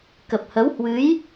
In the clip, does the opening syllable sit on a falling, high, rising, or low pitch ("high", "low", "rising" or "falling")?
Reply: low